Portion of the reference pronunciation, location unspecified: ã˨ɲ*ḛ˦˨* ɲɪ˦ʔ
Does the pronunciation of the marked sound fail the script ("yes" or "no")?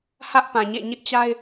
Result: no